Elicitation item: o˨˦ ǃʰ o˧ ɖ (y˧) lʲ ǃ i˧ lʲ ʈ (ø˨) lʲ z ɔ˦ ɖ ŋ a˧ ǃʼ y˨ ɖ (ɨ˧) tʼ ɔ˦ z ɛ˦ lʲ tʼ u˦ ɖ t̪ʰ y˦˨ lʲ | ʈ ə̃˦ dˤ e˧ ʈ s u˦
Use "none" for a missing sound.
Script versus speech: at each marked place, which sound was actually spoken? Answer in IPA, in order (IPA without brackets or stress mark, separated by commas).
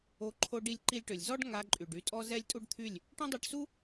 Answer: i˧, ø˨, y˧